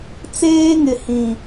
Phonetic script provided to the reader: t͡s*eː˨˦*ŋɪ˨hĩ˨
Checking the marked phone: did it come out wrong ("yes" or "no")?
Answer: yes